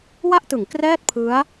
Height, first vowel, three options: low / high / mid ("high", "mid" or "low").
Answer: low